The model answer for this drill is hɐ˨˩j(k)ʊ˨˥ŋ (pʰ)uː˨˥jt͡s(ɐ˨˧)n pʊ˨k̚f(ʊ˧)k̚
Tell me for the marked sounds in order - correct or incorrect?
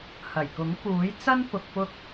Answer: correct, incorrect, incorrect, correct

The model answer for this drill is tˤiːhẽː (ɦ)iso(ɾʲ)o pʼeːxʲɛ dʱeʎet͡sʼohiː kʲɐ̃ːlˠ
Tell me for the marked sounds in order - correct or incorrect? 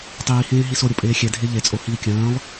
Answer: correct, correct

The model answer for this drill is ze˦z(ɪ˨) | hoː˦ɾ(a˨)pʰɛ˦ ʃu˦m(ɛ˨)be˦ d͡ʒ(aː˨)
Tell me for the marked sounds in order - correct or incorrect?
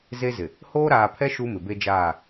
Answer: correct, incorrect, incorrect, incorrect

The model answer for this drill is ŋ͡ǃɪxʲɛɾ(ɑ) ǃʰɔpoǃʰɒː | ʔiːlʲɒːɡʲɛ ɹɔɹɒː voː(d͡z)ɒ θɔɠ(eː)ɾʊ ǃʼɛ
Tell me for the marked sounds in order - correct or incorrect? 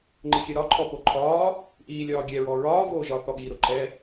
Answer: incorrect, incorrect, incorrect

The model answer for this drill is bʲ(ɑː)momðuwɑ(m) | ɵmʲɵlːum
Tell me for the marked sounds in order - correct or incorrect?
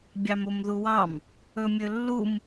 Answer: incorrect, correct

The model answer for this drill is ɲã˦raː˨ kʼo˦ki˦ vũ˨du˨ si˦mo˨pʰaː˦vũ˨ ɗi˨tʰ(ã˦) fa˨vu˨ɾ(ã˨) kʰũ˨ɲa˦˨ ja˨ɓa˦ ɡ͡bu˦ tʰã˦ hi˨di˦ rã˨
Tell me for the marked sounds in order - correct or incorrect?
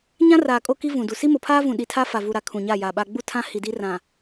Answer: incorrect, incorrect

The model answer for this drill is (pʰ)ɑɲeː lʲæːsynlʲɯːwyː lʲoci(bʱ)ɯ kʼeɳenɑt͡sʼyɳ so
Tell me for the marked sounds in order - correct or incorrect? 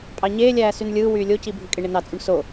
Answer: incorrect, correct

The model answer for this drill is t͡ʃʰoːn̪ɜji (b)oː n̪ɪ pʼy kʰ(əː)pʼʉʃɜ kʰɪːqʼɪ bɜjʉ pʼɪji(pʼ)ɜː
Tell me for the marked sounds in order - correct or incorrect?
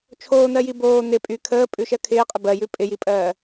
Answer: correct, correct, correct

